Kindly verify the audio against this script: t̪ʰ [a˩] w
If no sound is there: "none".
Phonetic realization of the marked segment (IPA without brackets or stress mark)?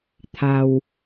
a˩